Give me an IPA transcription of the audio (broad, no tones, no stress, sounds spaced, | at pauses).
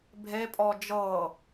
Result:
bʱ e pʼ ɔ d͡ʒ ɤ